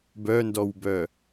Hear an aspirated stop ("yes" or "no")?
no